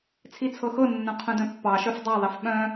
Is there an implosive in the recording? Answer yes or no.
yes